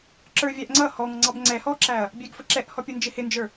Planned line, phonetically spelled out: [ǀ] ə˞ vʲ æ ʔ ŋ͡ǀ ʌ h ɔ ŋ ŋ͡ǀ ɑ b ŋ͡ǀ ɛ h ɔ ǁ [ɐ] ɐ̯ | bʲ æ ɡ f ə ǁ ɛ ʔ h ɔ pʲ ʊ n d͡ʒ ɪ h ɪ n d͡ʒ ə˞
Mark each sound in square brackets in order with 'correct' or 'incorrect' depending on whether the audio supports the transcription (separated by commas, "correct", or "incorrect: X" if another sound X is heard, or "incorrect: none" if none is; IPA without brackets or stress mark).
incorrect: ǁ, incorrect: æ